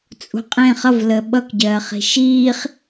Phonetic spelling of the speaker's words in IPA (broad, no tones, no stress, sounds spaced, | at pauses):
t͡sʼ ṳ qʼ ẽ χ ʌ v l əː ɓ ʌ k ɟ ɜː χ i̤ ʃ iː χ